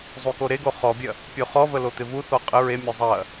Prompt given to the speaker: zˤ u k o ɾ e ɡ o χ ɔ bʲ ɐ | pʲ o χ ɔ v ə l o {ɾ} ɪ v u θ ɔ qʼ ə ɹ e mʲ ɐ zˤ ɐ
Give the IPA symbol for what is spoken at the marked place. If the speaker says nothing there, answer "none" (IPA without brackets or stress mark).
t̪